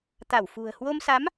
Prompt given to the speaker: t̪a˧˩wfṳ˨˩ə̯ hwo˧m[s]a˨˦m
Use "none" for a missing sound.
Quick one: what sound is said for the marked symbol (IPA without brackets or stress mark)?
s